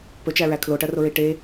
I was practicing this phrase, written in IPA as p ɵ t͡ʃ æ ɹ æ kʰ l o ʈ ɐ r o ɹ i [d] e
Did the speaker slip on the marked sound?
yes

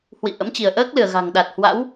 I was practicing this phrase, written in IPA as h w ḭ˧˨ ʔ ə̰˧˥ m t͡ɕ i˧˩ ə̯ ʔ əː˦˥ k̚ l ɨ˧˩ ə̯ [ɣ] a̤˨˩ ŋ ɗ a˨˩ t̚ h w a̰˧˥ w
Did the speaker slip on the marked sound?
no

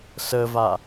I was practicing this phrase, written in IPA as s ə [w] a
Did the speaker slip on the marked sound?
yes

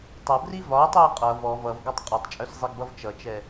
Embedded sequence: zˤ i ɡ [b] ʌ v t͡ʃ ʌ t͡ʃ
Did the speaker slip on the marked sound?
no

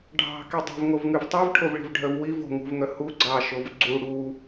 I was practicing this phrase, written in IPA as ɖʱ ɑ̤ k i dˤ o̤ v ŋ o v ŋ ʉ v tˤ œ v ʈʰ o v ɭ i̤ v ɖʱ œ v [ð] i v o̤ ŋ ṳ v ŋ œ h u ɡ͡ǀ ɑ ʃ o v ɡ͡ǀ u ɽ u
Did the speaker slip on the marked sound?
yes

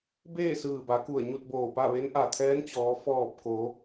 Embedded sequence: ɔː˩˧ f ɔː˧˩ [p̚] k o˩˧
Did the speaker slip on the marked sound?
no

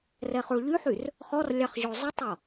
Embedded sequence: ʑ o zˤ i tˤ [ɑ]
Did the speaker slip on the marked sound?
yes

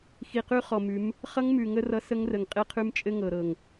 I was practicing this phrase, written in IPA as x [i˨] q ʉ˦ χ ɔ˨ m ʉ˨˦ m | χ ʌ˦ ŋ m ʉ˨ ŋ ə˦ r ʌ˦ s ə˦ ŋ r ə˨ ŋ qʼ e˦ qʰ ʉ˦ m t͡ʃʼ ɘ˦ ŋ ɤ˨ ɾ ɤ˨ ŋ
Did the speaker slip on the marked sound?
no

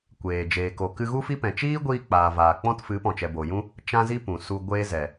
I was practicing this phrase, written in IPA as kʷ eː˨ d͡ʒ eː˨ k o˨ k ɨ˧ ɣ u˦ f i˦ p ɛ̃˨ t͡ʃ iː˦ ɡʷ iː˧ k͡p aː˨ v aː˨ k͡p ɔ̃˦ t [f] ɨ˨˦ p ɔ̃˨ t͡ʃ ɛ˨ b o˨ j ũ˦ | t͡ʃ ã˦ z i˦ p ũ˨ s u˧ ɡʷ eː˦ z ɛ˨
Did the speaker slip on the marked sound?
no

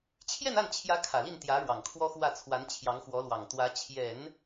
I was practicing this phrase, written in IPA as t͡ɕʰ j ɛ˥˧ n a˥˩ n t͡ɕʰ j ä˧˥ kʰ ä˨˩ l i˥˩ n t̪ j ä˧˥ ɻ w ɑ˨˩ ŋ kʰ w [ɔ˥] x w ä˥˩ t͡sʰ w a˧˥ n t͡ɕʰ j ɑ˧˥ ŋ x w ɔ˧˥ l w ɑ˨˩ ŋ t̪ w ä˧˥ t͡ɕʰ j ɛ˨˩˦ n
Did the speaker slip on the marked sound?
no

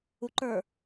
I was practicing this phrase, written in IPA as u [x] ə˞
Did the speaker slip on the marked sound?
yes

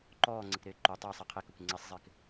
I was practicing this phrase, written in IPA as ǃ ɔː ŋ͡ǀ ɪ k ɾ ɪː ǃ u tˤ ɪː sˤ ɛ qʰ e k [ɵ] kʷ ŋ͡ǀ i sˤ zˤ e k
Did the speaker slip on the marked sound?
no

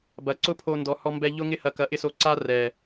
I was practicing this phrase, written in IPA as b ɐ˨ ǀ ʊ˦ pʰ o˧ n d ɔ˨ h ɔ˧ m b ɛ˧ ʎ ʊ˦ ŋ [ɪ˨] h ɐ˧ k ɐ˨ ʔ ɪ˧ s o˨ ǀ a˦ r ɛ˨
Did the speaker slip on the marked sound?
yes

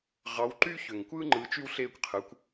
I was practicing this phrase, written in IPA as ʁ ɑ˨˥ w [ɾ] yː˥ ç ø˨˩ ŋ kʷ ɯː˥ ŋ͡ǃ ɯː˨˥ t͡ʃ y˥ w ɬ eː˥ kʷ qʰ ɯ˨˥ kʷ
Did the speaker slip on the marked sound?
yes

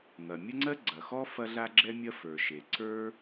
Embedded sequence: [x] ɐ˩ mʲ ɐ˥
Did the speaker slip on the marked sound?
yes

